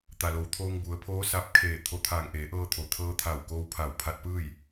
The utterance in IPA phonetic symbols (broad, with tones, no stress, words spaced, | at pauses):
t̪a˩lo˩wt̪ʰoː˧ŋ bu˩˧ə̯ pʰoː˧˥sa˧˥p̚kʰeː˧˩ t̪ʰo˧˩t̪ʰaː˧˩ŋ ʔeː˩˧ʔɤː˧t̪ʰo˩ t̪ʰɤː˧t̪ʰa˧˩w koː˧wpʰa˧˩wpʰa˧t̚pɯː˥˨j